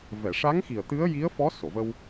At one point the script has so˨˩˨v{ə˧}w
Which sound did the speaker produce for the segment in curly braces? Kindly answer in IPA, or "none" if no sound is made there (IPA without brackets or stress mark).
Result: ə˧